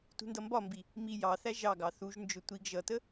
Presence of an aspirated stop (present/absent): absent